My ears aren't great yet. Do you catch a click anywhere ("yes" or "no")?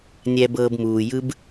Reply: no